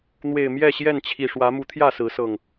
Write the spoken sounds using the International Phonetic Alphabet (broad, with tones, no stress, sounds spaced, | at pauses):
n̪ w e˨˩ ɪ̯ m j ɛ˥˨ ɕ j ɛ˥˨ n t͡ɕʰ i˨˩ ʂ w ä˨˦ m u˨˦ t̪ʰ j ä˥˨ s ɹ̩˨˦ s ɤ˨˩ ŋ